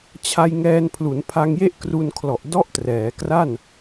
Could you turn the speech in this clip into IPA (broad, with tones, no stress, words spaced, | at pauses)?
t͡ɕʰa˧j ŋɛː˧npʰlu˩˦npʰa˧ŋje˥˩ʔ kru˧nkʰlɔ˨˩ʔ dɔ˥˩ʔtrɛː˩˦kra˥˩n